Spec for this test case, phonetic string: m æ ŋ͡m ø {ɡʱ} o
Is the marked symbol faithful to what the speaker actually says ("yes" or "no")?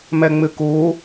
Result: no